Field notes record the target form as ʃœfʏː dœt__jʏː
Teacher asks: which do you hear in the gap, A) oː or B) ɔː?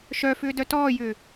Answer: B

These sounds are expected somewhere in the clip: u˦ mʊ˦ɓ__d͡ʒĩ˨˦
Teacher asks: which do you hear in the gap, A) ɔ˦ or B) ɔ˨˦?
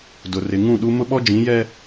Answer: A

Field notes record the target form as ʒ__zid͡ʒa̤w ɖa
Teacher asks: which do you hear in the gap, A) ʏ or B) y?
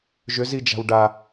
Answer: A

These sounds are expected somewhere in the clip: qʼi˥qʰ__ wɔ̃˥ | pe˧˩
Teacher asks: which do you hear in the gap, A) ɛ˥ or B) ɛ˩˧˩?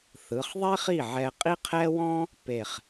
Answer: A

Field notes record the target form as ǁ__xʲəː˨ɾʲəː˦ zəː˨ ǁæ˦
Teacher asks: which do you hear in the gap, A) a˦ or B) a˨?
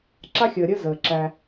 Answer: A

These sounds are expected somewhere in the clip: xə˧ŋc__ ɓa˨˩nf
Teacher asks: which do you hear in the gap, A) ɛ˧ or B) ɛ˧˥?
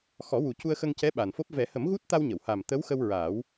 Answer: B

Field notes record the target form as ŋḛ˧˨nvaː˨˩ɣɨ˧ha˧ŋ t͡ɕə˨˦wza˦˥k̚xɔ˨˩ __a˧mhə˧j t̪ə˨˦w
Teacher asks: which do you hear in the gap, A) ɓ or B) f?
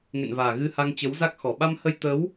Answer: A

